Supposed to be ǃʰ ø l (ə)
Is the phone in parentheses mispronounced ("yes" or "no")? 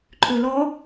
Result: yes